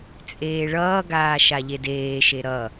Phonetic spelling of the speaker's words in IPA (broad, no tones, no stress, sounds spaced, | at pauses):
t͡sʼ eː ɭ ʌː ɡ aː ʃ a ʎ e d eː ʃ e ɾ ʌ